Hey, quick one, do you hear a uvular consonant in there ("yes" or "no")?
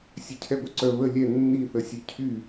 no